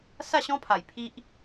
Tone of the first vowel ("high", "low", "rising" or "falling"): falling